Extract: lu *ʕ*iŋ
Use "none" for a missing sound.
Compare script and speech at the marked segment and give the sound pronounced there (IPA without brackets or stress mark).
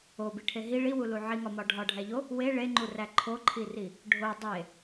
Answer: ʕ